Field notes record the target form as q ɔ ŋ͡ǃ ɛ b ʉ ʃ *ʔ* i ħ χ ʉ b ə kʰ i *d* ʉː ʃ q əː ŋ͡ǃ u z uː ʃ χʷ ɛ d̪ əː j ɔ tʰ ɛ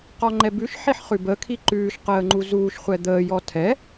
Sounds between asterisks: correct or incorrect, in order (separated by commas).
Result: incorrect, incorrect